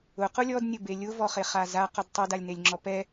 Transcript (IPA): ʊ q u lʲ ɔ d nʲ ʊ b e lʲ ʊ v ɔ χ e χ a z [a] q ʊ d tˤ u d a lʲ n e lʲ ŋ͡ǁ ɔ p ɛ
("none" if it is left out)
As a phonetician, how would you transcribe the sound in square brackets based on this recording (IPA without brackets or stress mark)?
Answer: a